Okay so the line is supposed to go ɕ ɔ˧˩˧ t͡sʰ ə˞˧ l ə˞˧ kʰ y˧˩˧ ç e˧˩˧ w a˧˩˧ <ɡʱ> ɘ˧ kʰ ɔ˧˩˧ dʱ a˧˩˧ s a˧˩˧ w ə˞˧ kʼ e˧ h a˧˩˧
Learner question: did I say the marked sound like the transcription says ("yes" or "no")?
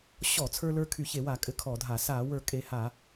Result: no